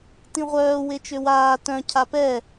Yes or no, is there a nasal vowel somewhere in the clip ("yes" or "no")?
yes